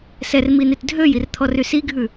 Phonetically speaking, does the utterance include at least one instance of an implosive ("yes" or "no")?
no